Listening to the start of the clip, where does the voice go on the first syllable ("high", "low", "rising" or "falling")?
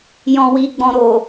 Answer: low